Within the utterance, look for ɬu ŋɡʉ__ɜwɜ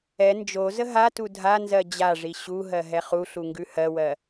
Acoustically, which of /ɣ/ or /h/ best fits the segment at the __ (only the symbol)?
h